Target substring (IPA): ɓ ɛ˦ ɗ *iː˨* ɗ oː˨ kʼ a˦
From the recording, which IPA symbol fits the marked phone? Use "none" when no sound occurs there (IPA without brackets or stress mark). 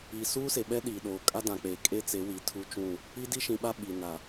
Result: iː˨